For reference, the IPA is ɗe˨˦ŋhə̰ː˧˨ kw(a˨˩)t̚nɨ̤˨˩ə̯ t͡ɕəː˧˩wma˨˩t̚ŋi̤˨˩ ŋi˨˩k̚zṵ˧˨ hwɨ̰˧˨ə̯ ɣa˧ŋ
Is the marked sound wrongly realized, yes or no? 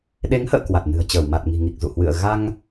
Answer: no